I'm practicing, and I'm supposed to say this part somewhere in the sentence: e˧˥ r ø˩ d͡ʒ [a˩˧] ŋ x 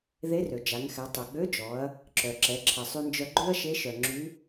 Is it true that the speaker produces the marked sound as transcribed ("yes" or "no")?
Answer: yes